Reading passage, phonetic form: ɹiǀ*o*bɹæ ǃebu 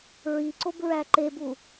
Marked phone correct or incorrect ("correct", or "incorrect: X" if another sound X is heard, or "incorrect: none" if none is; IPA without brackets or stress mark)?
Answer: correct